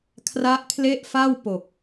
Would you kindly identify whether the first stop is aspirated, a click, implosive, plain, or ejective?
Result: aspirated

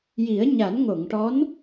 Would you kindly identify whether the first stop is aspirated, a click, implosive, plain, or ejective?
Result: plain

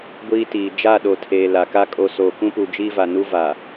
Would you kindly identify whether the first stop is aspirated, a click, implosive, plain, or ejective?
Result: plain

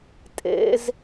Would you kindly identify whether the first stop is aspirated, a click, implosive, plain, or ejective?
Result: ejective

